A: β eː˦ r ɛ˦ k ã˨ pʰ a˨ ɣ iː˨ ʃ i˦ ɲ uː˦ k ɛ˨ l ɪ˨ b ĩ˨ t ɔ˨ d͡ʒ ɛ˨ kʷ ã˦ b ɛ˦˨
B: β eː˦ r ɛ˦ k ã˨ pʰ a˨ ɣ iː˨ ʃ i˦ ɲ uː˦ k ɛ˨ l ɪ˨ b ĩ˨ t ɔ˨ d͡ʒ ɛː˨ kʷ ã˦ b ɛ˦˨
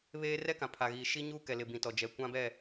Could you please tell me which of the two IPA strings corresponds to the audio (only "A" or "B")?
A